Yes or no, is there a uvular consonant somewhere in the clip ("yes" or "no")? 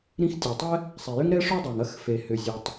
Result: no